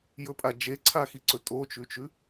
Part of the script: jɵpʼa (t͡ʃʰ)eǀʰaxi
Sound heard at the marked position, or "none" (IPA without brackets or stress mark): d͡ʒ